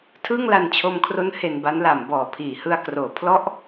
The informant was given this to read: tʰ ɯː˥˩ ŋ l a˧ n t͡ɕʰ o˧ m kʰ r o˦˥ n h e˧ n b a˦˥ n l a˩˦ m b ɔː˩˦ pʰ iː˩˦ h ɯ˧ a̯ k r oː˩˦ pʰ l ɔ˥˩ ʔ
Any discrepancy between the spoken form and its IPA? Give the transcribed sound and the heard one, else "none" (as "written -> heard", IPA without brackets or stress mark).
none